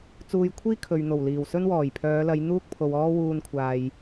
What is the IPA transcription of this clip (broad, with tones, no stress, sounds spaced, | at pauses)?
t͡s uː˧ j kʷʰ iː˥ kʰ ɵ˨ ɥ n̪ o˨˩ w l iː˨˩ w s ɵ˥ n w ɔː˨˩ j pʰ œː˨˧ l ɐ˨˧ j n̪ uː˥ k̚ pʰ o˨ w ɔː˥ w uː˧ n kʷʰ aː˨ j